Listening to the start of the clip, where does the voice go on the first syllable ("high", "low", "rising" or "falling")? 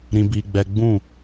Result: low